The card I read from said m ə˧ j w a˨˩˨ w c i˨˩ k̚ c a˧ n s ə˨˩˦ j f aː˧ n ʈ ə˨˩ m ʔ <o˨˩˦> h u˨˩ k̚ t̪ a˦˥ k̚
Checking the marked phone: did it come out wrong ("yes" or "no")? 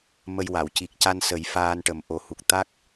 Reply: no